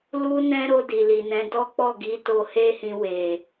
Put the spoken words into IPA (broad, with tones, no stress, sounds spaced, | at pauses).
l u˦ n ɛ̃˦ ɾ o˧ d i˨ l i˨ n ɛ̃˨˦ d ɔ˦ k͡p ɔ˦˨ ɡ i˨˦ t o˧ h e˦ h ĩ˧ w e˨